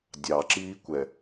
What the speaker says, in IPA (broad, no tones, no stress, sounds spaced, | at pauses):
dʲ ɑ ǁ iː kʷ ɛ